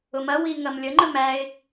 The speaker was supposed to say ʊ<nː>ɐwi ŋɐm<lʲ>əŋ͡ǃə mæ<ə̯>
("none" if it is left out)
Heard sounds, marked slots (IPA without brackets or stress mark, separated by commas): m, lʲ, ɪ̯